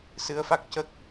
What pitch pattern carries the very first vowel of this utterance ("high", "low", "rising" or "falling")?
rising